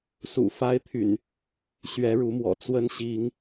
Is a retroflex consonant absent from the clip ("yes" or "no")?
no